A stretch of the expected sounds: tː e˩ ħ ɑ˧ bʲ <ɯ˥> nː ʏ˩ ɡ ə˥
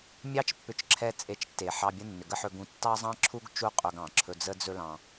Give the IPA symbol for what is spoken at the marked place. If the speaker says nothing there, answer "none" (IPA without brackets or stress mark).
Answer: ə˥